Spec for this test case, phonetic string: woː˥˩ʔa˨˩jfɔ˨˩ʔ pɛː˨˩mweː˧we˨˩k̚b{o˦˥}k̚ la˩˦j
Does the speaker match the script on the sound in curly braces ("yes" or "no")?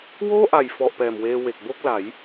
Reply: no